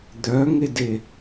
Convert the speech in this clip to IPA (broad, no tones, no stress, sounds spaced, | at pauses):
d̪ œ ŋ e d e